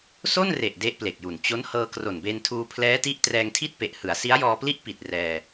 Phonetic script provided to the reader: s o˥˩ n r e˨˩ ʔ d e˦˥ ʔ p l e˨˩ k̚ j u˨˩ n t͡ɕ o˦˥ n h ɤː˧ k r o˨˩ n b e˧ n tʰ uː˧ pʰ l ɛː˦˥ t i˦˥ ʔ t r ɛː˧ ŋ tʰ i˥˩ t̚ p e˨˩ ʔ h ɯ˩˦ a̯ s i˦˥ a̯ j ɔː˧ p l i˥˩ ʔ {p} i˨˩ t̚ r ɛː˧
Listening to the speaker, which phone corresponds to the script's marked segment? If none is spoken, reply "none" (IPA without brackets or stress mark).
p